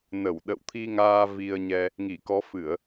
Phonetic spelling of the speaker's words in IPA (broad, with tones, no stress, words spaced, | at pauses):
nə˧˩w ɗə̰˧˨wt̪ʰi˧ŋaː˧ vi˧ə̯ɲɛ˧ | ŋi˧˩kɔ˨˦fɨ˧˩˨ə̯